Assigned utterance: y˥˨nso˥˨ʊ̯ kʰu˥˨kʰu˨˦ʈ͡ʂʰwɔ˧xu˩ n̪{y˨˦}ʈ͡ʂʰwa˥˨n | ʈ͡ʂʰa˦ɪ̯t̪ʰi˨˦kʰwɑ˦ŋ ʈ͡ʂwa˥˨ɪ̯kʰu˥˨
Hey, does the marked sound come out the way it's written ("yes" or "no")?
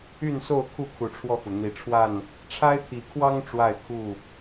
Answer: no